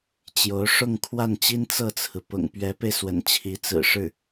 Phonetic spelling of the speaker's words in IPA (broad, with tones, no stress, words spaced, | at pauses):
t͡ɕjo˧˥ʊ̯ ʂʊ˥˧ŋ kʰwa˥˩nt͡ɕi˥n t͡sɤ˥˩t͡sʰɹ̩˩ pʊ̰˨˩ŋpɥɛ˧˥pe˧ɪ̯swə̰˨˩n t͡ɕʰi˧˥t͡sɹ̩˨˩ ʂɻ̩˥˩